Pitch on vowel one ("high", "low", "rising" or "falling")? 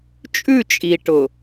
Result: falling